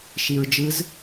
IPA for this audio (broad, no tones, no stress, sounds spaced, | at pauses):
ʃ i ɹ d͡ʒ ɯ z